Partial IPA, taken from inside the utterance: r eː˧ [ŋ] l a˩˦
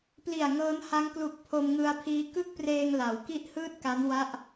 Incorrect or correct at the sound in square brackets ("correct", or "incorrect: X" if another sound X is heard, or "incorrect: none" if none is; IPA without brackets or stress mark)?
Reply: correct